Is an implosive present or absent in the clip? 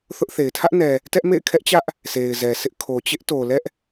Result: absent